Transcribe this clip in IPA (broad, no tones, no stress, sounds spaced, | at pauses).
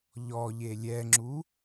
ʎ ɔ ʎ e lʲ ɛ ŋ͡ǁ u